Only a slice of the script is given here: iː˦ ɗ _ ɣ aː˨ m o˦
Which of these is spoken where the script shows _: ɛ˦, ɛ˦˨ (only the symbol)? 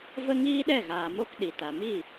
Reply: ɛ˦˨